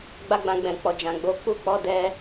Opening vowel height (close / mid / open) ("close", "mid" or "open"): open